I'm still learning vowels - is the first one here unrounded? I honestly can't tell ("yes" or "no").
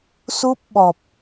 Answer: no